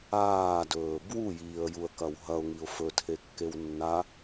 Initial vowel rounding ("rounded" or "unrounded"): unrounded